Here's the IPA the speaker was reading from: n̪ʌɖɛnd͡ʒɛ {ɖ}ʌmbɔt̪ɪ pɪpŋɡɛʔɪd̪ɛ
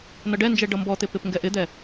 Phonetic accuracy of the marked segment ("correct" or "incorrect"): correct